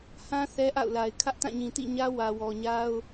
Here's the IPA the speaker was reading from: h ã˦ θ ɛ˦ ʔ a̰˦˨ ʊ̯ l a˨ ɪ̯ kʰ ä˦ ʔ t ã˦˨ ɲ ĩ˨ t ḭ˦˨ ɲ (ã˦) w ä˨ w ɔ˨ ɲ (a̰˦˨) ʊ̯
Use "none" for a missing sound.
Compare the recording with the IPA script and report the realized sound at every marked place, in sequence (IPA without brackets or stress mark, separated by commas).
ä˦, a˦